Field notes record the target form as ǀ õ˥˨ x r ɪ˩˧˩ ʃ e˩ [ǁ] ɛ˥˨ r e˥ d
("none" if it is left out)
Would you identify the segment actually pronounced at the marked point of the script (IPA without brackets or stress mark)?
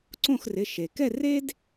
k